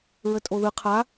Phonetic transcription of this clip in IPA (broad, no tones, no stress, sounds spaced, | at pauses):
ɹ ə tʼ o ð ɯ qʰ a